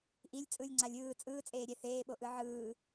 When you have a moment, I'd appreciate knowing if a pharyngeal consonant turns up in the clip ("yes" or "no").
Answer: yes